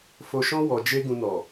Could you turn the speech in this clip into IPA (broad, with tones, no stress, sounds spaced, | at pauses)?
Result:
f o˧ ʃ ɔ̃˦ w ɔ˧ d͡ʒ e˦ ɡ ũ˧ n ɔ˨